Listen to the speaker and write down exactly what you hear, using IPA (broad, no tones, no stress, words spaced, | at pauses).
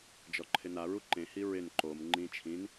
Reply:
d͡ʒɔǃʰɪnaɹu ǃẽhi ɹɪn ǃom ŋ͡ǃĩ t͡ʃʰĩn